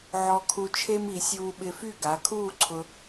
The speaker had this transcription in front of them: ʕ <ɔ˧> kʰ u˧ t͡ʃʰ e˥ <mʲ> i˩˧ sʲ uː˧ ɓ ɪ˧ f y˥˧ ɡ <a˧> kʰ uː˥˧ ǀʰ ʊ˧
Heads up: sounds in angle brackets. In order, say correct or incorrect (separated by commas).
correct, incorrect, incorrect